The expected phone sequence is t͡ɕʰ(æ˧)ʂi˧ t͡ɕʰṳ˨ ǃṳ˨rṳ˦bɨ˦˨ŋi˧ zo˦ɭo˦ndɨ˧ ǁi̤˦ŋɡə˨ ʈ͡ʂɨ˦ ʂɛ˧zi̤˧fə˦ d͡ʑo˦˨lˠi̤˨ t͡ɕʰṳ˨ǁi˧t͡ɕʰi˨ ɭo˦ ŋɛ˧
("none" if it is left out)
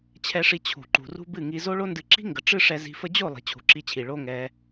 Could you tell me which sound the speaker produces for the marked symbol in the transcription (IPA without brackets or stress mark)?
ɛ˧